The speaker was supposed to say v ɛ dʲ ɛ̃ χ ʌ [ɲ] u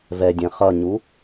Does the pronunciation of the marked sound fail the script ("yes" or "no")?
no